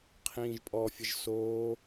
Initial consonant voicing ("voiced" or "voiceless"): voiceless